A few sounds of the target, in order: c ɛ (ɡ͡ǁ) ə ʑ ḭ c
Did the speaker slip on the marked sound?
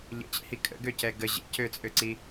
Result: yes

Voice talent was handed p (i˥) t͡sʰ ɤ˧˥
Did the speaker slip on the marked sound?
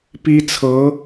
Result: no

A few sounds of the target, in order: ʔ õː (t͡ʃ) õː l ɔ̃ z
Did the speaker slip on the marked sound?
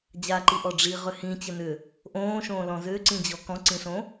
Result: yes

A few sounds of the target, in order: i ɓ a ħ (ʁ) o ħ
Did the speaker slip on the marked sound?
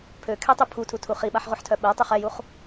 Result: no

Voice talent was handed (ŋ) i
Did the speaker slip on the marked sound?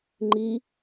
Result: yes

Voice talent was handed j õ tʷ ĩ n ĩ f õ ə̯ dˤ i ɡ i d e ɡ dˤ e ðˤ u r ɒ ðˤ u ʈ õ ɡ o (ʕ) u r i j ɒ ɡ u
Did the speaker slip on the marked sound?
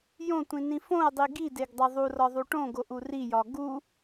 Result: yes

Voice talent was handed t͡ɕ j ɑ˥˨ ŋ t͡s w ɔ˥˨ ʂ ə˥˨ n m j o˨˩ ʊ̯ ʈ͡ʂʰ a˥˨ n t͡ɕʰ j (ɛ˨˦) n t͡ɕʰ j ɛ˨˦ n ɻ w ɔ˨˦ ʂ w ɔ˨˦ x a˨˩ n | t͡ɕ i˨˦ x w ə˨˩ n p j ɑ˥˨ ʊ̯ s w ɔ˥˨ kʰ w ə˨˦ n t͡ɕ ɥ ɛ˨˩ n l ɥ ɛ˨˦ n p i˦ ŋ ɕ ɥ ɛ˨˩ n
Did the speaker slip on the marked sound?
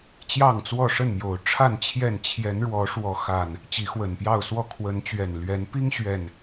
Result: yes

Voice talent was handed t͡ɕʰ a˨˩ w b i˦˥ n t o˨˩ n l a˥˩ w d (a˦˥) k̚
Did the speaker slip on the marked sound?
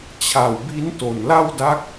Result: no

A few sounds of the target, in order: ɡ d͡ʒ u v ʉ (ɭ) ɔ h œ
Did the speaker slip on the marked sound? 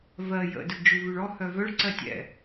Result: no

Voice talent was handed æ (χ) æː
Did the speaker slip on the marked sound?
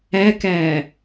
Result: yes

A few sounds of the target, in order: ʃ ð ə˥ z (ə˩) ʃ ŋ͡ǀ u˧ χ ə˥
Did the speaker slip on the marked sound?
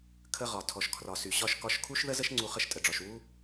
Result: yes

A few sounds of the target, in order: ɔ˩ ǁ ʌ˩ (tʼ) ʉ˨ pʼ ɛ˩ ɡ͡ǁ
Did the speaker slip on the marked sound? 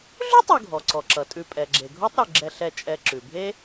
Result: no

